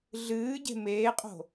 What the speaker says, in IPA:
ɮ ɨː ɟ e̤ m eː qʼ o̤

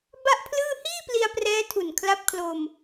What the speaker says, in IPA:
b a˥˩ ʔ pʰ l ɯː˥˩ h iː˥˩ p l i˧ a̯ p r ɛː˦˥ tʰ u˨˩ n kʰ l a˦˥ p̚ kʰ l o˧ m

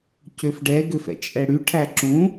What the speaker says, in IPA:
c ø f ɖ ɛ ɡ ø f ɛ̰ t͡ʃʼ ɛ ɽ y ʈʰ æ ǁ ũ

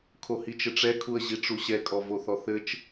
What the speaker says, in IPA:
kʰ o h i t͡ʃ ɘ ʈ͡ʂ ɛ kʰ u ə̯ ʑ i ʈ͡ʂ u ɕ ɛ kʼ ɔ v o θ ɔ θ ɘ t͡ʃ

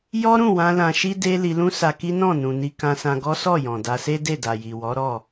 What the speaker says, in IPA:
j ɔ˦ ɾ ũ˦˨ w ã˧ l ã˧ ʃ i˦ d e˦ l i˧ l ũ˦ s a˧ k i˦ n ɔ̃˦˨ n ũ˨ n i˧ k ã˧ s ã˧ ɡ ɔ˦ s ɔ˦˨ j ɔ̃˨ d a˧ s e˦ d e˦˨ d a˨ j i˨ w ɔ˨˦ ɾ ɔ˦˨

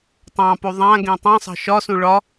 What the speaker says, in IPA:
tˤ ɑ̃ p u ðˤ ã ɡ ẽ tˤ ã sˤ ɑ̤ ʃ ɒ s ũ ɭ ɒ

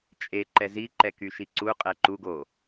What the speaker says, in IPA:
t͡ʃʼ e ǃ ɛ z i ǃ ɛ k y ʃ i ǀ u qʼ ɛ ǃ u ɡ o

